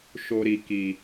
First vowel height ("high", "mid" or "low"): mid